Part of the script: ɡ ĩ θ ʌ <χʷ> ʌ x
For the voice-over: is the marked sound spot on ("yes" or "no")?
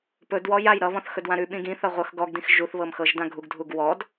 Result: no